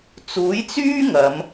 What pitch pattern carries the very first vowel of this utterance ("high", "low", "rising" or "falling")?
rising